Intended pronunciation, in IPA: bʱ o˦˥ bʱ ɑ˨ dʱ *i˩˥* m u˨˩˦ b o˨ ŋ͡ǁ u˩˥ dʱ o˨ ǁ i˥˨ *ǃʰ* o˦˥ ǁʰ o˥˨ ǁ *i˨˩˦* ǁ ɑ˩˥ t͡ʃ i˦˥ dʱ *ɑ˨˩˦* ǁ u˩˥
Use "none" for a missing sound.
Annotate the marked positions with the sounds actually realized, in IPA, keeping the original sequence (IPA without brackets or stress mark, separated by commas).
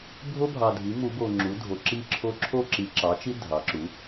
i˩˥, ǁʰ, i˨˩˦, ɑ˩˥